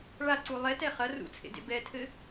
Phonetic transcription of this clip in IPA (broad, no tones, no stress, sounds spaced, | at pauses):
ɭ a ǀ u lˠ ɛ t ɛ χ ɐ r ṵ t͡sʰ ḛ d ḛ b ɛ tʰ ɘ